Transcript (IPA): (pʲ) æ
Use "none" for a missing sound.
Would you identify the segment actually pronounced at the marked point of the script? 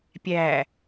pʲ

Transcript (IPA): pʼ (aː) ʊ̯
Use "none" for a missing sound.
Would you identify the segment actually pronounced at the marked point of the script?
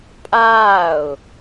aː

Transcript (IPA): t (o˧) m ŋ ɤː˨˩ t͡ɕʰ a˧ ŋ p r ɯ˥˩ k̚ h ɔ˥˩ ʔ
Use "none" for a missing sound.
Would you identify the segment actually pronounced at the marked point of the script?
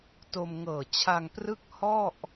o˧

